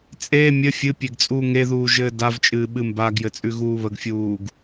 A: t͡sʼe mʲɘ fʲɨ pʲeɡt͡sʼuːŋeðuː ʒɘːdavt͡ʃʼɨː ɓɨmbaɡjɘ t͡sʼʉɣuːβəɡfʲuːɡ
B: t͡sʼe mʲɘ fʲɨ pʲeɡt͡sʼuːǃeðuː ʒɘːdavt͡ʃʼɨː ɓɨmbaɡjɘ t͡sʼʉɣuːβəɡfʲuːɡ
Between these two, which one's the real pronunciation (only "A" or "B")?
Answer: A